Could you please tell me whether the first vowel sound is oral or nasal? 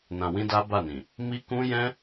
nasal